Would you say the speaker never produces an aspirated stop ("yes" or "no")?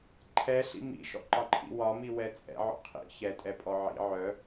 no